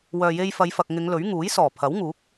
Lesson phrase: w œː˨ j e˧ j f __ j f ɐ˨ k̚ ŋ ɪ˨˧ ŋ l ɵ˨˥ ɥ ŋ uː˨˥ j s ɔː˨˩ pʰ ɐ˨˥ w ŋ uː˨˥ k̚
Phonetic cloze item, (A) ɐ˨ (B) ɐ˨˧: B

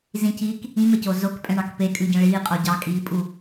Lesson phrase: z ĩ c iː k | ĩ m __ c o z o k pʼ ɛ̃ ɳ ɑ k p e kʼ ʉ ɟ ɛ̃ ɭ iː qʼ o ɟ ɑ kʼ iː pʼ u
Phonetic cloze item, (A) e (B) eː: A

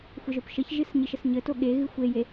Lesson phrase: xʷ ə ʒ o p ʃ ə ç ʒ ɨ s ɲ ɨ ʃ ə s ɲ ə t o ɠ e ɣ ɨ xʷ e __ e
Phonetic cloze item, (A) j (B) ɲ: A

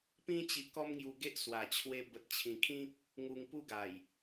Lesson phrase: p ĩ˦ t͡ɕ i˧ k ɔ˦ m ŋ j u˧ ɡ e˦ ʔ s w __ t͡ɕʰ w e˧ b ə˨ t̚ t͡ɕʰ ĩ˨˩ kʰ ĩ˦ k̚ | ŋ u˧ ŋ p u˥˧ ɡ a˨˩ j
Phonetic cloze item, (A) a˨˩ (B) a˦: A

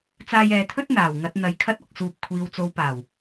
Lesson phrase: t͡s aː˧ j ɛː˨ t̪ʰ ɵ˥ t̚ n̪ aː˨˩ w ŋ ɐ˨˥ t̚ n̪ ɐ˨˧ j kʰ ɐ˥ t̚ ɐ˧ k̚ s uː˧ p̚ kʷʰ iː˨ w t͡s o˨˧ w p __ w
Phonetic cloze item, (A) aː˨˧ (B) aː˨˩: B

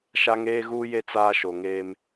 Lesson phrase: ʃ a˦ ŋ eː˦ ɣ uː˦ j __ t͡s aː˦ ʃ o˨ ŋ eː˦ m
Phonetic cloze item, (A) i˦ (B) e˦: B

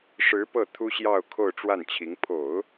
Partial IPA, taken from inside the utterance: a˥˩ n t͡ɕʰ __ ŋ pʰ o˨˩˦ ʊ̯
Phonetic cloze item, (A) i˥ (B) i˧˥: B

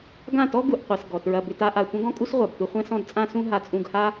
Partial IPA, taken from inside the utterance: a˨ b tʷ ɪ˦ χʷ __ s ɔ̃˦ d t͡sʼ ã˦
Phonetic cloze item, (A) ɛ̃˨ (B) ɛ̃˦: B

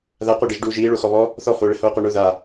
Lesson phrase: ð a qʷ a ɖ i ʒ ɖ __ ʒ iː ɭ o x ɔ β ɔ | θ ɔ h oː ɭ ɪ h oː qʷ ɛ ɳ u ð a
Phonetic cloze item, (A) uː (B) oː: A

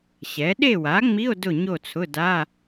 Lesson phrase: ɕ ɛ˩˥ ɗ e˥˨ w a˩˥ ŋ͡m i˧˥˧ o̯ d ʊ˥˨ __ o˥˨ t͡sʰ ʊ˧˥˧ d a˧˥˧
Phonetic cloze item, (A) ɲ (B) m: A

